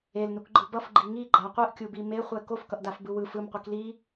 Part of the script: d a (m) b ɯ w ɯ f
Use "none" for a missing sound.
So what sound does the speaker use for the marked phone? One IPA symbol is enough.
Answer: f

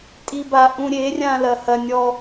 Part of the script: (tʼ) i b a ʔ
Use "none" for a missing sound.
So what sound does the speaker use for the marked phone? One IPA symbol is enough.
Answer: tʼ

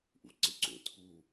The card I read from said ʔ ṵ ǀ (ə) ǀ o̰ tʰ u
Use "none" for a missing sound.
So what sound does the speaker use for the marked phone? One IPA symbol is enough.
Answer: ɪ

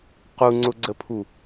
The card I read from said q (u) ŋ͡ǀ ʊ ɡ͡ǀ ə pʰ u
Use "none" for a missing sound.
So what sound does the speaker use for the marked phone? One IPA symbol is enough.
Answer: u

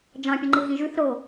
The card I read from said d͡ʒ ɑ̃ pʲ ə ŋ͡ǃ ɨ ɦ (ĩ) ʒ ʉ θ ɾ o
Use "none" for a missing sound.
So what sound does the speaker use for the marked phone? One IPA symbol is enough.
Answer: ĩ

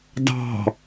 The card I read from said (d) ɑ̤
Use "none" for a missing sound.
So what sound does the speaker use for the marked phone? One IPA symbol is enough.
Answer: d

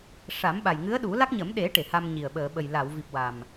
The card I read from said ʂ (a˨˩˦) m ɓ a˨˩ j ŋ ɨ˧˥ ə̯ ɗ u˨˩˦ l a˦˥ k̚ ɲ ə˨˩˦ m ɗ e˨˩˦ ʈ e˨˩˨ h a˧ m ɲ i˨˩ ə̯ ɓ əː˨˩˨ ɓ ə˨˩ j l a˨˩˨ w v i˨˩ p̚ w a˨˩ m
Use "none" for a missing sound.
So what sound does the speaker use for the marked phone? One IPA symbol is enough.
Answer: a˨˩˦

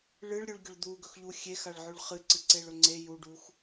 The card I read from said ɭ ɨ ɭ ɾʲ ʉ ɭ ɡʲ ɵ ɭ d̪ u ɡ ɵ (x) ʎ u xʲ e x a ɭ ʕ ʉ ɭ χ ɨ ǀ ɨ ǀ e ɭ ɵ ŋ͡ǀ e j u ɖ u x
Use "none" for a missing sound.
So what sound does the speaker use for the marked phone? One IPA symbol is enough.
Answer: x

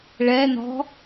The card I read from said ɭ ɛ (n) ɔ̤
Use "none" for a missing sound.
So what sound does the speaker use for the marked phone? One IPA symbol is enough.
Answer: n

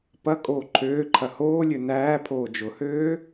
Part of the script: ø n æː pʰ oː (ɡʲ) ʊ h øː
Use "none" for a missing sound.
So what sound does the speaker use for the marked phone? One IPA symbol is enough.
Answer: d͡ʒ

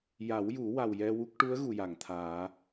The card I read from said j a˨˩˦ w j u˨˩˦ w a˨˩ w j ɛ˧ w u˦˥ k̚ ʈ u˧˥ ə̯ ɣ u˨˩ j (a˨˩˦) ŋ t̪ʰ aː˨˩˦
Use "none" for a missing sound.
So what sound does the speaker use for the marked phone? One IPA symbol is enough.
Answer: a˨˩˨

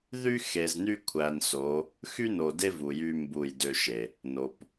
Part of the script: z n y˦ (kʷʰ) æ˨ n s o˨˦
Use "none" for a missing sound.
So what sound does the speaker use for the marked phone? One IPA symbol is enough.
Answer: kʷʰ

